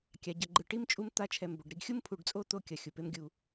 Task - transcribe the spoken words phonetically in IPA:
kʲ a˩ ɟ ʌ˩ ɡ͡ǃ ɯ˨ ʈ i˥ m t͡ʃʼ u˦ m t̪ a˦ t͡ʃʰ ɛ˨ m b o˩ ɖ ɾ i˥ ɡ xʲ u˥ m pʰ u˨ ɖ t͡sʼ o˦ t̪ o˥ kʲ ʌ˩ xʲ u˩ p e˥ m ɡʲ u˨

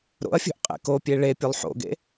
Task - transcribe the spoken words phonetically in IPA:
ɾ o̰ ɐ̯ fʲ o̤ ʔ qʼ ḛ k o pʲ e ɭ e pʲ o lˠ ħ o̰ ɡ ḛ

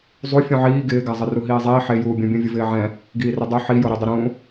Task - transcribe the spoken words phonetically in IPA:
zˤ u fʲ ũ ʕ iː ɡ ɪː ɡ a zˤ ɪ r u ɦ iː zˤ iː ħ e j uː bʲ ũ bʲ ũ vʲ ʊ v ɪː ʕ ɛ̃ | ɡ iː r ɪ dˤ u ħ i j o ɾ i dˤ ɪ ɾ ũ

